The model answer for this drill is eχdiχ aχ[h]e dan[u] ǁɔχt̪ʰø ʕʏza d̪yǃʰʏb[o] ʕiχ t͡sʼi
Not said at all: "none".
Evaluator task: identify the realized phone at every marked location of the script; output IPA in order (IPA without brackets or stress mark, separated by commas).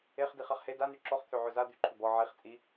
h, y, ɔ